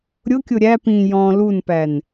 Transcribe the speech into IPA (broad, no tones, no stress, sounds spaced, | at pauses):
ɾʲ ʊ kʲ ʊ ɾʲ æ p ĩ j ɔ̃ l u n p æ n